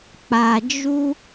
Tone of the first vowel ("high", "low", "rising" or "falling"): low